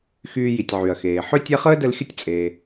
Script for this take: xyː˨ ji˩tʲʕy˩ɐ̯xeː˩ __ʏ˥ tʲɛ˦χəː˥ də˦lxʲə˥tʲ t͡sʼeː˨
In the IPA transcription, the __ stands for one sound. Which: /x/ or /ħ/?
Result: ħ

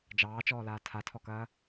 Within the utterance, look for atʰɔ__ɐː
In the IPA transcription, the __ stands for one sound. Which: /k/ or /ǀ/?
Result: k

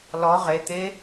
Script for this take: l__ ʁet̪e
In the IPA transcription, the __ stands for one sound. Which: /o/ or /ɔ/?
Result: ɔ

